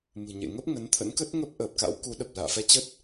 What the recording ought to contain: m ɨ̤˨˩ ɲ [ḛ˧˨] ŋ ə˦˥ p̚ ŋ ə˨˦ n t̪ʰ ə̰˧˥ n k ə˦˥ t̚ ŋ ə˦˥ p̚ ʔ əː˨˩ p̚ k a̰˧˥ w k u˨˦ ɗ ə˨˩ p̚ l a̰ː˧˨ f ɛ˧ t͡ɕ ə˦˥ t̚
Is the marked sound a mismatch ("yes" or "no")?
no